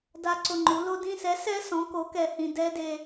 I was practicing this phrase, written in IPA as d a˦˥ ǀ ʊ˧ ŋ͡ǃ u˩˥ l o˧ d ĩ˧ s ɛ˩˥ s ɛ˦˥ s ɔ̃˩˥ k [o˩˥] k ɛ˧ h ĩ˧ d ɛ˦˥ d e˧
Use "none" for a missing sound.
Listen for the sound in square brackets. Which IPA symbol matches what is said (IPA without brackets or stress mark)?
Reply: o˩˥